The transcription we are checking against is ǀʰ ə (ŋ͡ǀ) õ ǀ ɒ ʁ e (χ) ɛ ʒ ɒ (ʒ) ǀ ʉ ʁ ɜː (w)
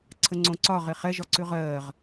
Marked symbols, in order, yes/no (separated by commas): yes, yes, no, no